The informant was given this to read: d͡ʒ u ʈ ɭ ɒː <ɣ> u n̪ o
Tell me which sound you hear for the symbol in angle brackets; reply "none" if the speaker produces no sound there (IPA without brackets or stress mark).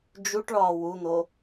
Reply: w